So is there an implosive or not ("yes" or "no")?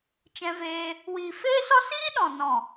yes